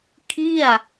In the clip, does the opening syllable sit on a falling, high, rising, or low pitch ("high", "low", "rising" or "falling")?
falling